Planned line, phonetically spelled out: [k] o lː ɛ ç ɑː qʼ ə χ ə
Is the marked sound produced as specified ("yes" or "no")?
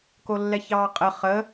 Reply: yes